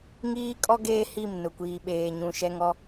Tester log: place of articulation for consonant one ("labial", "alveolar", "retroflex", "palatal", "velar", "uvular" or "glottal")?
velar